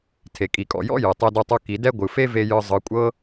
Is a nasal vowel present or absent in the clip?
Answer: absent